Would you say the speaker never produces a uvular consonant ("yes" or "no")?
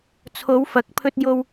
yes